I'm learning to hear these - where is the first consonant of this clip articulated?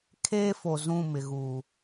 velum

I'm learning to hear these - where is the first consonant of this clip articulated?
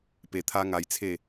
lips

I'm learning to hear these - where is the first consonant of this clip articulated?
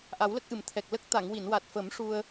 throat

